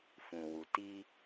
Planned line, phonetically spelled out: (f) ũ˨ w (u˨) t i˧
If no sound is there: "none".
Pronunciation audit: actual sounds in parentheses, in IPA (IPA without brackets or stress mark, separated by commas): f, u˨